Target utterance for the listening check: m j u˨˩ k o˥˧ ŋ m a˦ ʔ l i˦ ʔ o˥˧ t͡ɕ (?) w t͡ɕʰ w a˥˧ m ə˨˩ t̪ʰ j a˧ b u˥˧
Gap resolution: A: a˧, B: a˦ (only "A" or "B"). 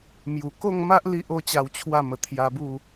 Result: A